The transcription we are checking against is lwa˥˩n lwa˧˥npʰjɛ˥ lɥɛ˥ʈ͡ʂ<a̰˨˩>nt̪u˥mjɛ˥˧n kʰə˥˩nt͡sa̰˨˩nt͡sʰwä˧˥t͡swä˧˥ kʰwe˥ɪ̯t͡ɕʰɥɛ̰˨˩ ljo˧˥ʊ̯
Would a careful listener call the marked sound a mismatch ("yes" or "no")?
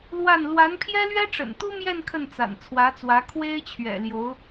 yes